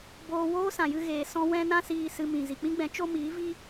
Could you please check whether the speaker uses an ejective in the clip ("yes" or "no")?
no